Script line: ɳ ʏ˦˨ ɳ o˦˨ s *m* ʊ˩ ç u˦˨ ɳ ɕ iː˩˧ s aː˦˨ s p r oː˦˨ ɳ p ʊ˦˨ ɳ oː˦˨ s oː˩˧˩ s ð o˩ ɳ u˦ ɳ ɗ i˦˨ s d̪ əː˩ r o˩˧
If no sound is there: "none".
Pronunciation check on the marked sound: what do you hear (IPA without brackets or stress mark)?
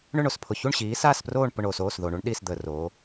pʰ